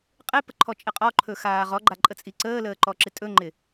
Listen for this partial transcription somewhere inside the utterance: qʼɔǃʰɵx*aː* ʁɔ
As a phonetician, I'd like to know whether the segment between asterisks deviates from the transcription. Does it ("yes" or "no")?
no